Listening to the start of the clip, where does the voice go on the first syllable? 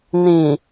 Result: low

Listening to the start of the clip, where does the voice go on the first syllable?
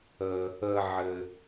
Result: low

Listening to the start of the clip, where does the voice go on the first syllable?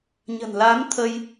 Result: low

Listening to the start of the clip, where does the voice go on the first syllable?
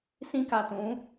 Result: high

